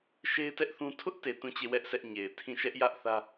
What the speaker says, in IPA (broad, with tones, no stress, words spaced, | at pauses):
ʃe˦ɪ̯tɛ˦ʔ θũ˦ tʰʊ˦ʔte˨ tũ˦˨t͡ɕe˦˨wɛ˦ʔ sɛ˦ʔɲe˨ɪ̯ tʰĩ˦˨ ʃɛ˦ʔjä˦ʔθä˦